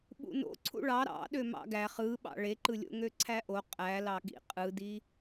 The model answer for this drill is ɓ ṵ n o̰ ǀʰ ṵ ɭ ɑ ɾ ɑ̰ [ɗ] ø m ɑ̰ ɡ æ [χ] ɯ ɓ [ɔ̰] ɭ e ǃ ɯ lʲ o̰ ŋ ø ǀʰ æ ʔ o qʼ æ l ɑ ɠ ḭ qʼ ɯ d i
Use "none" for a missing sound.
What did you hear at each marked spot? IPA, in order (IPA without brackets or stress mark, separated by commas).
ɗ, χ, ɑ̰